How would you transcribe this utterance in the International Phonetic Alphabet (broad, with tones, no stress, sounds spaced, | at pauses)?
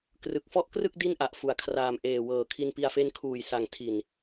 k r ɯ˨˩ k̚ f ɔ˥˩ ʔ k r ɯ˥˩ k̚ d i˥˩ n ʔ a˨˩ ʔ f u˨˩ a̯ kʰ r aː˨˩ m ʔ eː˨˩ w ɤː˨˩ kʰ i˧ n p i˧ a̯ f e˦˥ n kʰ uː˨˩ j s a˨˩ ŋ tʰ i˨˩ n